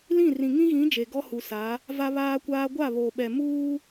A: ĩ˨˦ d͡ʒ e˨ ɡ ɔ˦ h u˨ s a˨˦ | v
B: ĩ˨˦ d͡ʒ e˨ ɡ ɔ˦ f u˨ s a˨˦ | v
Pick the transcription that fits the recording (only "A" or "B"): A